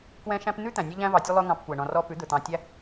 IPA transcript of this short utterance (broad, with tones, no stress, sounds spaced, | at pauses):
k w ɛ̃˧ ʃ æ̃˧ p n̪ ʉ˦ t̪ æ̃˨ nʲ ɛ˦ ʎ æ̃˦ v ɑ˧ tʲ ɵ˦ lˠ ɵ˧ ŋ ɑ̃˧ p kʷ ɛ˨ ɳ ɔ̃˨ r ɔ˧ p ʉ˨˦ d̪ ɵ˨ t̪ ɑ̃˧ tʲ æ˦